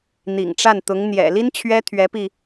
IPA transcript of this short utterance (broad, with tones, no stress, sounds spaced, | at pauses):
n̪ ḭ˨˩ ŋ ʈ͡ʂ a˥˩ n t̪ ʊ˧˥ ŋ n̪ j ɛ̰˨˩ l i˥ n t͡ɕʰ ɥ ɛ˥ t̪ʰ ɥ ɛ˧˥ p i˧